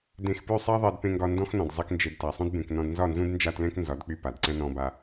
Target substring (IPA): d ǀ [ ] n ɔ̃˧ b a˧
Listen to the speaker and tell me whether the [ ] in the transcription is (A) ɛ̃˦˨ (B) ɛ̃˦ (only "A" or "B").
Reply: B